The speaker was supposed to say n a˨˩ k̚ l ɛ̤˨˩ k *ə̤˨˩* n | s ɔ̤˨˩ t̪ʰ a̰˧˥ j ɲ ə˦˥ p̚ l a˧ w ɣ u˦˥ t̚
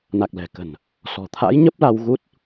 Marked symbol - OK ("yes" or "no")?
yes